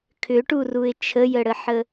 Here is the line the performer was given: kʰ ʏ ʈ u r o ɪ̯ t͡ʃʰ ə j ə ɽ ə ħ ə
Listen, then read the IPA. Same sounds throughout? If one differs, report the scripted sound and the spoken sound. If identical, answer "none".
o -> u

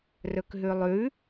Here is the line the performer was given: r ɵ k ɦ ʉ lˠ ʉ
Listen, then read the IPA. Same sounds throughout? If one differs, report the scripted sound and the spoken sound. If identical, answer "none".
none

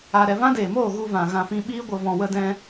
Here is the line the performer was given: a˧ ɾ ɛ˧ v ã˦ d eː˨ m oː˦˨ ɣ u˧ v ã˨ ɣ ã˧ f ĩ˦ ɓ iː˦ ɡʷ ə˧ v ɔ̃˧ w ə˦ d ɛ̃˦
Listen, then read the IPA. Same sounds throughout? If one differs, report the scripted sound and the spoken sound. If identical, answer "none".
none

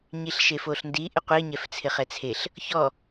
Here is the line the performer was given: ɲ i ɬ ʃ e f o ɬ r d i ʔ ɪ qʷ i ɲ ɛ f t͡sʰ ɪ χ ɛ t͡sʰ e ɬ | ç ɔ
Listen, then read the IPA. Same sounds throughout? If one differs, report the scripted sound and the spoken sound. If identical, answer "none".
r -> n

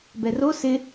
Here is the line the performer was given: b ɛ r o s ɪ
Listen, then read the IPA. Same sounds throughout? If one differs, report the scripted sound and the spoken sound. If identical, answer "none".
none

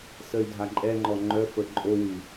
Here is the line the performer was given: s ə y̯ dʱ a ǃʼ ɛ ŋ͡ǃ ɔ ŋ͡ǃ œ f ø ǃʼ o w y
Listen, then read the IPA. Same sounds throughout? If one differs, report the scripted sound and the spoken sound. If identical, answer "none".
ø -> ə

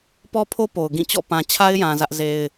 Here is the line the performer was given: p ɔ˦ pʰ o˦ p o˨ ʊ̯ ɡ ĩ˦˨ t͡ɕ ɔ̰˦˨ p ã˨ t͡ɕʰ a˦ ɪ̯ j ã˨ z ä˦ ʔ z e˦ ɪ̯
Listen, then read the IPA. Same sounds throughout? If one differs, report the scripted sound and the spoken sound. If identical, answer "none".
none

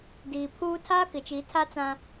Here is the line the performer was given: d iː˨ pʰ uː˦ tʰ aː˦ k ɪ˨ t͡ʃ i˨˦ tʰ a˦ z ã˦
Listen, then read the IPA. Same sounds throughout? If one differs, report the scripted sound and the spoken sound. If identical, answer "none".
z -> t͡s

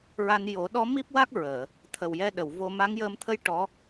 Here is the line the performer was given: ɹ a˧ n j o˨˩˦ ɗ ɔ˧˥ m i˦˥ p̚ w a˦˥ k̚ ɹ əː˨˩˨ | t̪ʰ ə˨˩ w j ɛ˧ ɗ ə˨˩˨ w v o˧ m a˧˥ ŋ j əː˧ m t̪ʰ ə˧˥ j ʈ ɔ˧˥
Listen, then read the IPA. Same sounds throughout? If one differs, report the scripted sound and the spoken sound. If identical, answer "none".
none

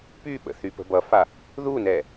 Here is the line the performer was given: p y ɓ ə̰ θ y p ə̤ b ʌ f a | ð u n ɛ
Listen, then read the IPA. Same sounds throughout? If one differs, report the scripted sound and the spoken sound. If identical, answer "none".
none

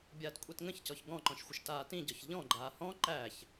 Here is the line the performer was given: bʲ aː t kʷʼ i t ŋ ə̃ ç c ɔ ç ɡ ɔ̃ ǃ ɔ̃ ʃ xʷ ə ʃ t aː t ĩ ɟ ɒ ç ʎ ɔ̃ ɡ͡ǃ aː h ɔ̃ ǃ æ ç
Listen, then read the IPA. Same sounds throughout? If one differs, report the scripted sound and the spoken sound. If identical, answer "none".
none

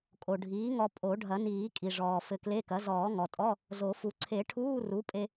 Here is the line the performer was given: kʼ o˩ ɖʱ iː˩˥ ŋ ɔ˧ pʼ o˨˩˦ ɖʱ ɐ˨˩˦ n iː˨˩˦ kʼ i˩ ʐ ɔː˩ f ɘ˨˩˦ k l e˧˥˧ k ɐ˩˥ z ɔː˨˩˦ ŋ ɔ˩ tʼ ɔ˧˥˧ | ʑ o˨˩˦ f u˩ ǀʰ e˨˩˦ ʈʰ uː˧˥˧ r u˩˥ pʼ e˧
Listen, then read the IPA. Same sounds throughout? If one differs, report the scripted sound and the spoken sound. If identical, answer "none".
ʑ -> z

